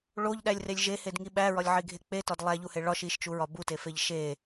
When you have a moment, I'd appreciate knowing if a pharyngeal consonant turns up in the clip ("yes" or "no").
yes